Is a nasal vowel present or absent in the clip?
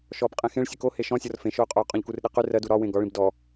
present